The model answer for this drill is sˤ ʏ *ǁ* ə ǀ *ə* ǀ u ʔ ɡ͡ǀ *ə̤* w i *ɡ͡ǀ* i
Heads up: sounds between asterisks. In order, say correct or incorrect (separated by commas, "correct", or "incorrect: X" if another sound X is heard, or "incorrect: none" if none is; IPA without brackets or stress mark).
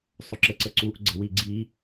correct, correct, correct, correct